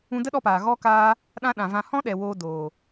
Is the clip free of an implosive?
no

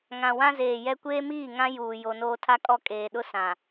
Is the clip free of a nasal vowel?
no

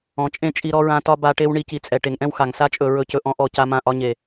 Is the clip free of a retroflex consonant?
no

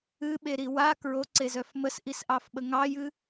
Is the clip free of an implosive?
no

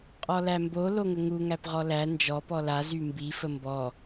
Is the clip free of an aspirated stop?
yes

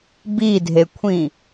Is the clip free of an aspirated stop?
no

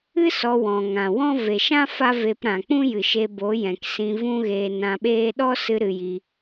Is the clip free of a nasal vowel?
no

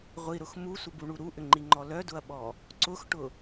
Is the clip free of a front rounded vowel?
no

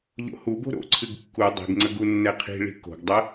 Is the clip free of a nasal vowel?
yes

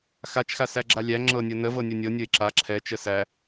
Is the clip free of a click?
no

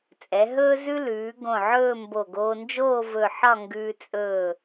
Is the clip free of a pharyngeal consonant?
no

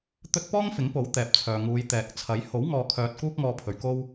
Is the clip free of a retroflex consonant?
yes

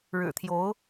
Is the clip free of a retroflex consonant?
no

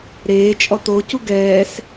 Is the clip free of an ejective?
no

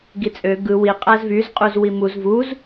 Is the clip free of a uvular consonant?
no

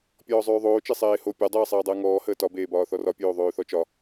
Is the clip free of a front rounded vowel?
no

